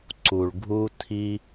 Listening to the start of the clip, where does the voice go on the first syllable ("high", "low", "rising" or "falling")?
low